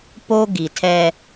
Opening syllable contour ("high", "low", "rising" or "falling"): high